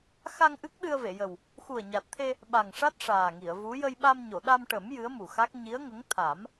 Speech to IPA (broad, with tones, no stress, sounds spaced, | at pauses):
x a˧ ŋ ʔ ɨ˦˥ k̚ ɗ ɨ˧ ə̯ v e˨˩˨ j ə˨˩ w | x u˨˩ ə̯ ɲ a˨˩ t̚ t̪ʰ e˧ | ɓ a˨˩ ŋ ʂ a˦˥ t̚ ʂ aː˨˩ ŋ i˨˩˨ ə̯ v u˧˥ j ə˧ j ɓ a˧ m ɲ o˨˩˨ ɗ a˧ m ʈ ə˨˩˦ m j ɨ˧˥ ə̯ m u˨˩ x a˦˥ k̚ ɲ i˧˥ ə̯ ŋ ə˧˥ ŋ t̪ʰ a˨˩˦ m